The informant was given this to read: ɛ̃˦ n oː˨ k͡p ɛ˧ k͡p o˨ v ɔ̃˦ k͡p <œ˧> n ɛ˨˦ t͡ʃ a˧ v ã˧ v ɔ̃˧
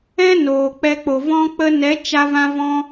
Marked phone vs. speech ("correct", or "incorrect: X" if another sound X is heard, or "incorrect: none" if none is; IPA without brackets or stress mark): incorrect: ə˧